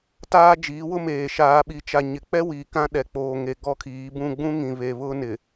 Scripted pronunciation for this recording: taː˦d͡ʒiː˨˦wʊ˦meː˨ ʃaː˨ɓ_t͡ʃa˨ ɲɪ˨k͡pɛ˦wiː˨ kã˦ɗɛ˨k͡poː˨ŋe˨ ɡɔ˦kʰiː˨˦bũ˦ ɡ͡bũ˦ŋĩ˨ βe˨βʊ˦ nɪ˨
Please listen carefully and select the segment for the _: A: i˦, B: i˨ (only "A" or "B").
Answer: B